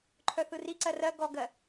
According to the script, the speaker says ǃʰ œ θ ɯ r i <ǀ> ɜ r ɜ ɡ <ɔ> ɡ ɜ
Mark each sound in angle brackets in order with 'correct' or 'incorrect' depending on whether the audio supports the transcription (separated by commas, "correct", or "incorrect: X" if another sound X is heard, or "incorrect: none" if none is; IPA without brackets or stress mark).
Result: correct, correct